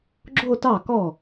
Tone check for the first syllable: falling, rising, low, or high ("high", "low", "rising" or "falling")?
falling